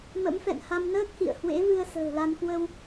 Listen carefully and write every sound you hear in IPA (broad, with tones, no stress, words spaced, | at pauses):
mə̰˧˥mfɛ̰˧˨nha˧m nəː˦˥k̚hḭ˧˨ə̯hwḛ˧˥vɨ˧ə̯ sə̤ː˨˩la˧nkwə˧w